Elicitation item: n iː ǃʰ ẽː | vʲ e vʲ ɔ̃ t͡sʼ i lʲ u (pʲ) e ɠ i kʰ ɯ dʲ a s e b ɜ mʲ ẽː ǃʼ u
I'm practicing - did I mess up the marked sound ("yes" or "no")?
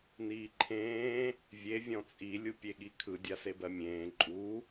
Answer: no